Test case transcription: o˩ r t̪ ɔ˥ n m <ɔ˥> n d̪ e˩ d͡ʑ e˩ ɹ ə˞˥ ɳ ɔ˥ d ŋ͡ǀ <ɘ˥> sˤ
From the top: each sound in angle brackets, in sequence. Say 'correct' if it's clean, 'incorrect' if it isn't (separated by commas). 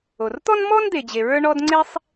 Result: correct, incorrect